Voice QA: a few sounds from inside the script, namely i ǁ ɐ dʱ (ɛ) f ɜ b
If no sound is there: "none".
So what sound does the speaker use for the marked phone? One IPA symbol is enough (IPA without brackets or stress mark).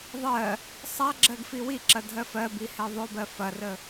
ɜ